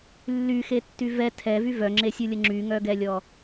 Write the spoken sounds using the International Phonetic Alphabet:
lː y x e tː y v ɛ tʰ ɛ v y v œ ŋ͡ǁ e sʲ u lʲ ə ŋ͡ǁ y ŋ œ ɡ ɛ lʲ ɔ

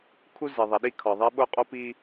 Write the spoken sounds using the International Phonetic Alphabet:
kʰ u˥ z i˩ ðˤ i˩ ɗ i˥ kʰ ɒ˩ ðˤ i˥ ɓ o˥ qʼ o˥ p i˥

